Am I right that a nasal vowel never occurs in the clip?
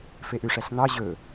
yes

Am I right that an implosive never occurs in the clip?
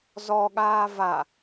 no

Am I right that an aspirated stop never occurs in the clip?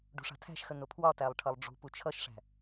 no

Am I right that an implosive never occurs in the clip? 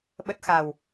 no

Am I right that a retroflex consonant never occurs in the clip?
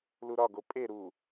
yes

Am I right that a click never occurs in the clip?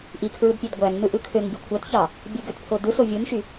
yes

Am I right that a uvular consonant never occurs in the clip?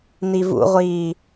no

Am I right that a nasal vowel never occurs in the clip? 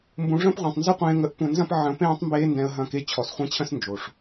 no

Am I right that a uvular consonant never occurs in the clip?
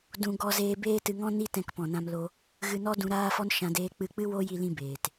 yes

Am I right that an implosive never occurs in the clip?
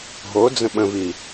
no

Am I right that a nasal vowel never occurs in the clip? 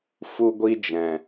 no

